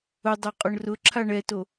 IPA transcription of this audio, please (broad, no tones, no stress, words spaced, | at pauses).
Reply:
ʊdˤo qʼʊɳrʊǁʰa ɳɛto